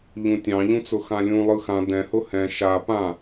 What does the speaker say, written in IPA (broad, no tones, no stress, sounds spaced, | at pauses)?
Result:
ʎ ũ tʲ ɑ̃ ʎ ũ t͡s ʊ x ã lʲ ũ lˠ ɯ x ã d ɛ̃ h ʊ h ɛ̃ ʃ a p ã